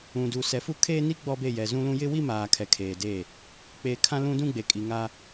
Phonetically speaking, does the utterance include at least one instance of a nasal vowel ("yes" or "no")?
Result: yes